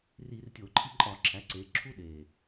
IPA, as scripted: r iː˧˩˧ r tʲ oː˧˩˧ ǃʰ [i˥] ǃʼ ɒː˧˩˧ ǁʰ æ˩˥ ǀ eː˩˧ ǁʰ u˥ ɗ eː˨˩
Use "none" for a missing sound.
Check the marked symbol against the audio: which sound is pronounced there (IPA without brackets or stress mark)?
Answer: i˥